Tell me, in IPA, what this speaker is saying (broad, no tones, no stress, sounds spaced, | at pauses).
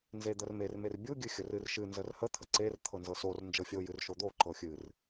n z e d̪ ə r m e r m e r bʲ u ɡʲ ɨ xʲ ə r ɨ r ʃ ɨ n z ə r h ə t̪ʰ ə ǀ e r t̪ʰ ɤ n z ɤ s o r n d͡ʒ ɤ fʲ o j ɨ r ʃ o d̪ o ǃ ɤ xʲ ɨ r